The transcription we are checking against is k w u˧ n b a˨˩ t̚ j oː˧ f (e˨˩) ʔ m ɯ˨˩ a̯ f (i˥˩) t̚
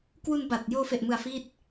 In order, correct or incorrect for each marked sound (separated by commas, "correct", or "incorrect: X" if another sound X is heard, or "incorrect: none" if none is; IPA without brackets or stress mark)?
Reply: correct, correct